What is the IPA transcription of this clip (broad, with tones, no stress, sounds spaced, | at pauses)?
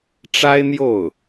ʈ͡ʂ a˥ ɪ̯ n̪ j o˥˩ ʊ̯